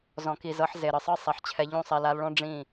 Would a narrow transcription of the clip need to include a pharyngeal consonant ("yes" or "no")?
yes